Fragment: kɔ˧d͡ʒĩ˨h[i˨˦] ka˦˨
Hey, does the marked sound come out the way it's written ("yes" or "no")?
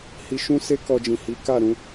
yes